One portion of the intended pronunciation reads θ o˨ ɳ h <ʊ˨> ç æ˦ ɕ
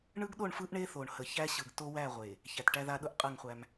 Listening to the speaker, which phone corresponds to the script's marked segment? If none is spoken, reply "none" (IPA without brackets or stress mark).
ə˨